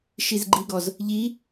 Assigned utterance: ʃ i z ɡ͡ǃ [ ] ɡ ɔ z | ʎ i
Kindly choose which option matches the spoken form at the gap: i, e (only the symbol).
i